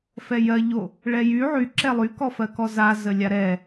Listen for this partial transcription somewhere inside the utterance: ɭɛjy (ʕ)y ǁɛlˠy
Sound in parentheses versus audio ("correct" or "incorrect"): correct